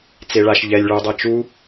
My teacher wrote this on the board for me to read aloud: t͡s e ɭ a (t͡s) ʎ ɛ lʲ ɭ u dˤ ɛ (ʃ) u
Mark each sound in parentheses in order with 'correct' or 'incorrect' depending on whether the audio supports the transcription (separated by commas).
incorrect, incorrect